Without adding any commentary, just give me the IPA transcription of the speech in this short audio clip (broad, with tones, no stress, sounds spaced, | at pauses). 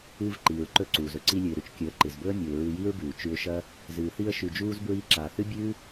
ɨː˧ v ǃ iː˨ ɹ ǃ ɵ˧ ǀ uː˨ z ɵ˧ ǀ i˧ lʲ ɨ˨ ɪ̯ ɾ ʉ˧ t͡ʃ kʲ ɵ˨˦ ə̯ ǃ ɨ˨ z b ɵ˦ ə̯ mʲ u˨ ɪ̯ ɹ ɨ˧ j i˦ ɹ b ʉː˨ t͡ʃ ʉ˧ ʊ̯ ʃ ɐ˦ | z ɨː˨ θ i˧ ə̯ ʃ ʉ˨ d͡ʒ uː˧ z b ɹ iː˧ ǁ aː˨ θ ɨ˦ bʲ ʉː˦